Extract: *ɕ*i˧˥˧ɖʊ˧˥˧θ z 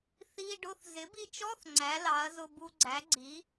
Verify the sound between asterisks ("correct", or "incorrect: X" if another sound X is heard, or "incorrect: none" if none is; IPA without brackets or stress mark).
incorrect: θ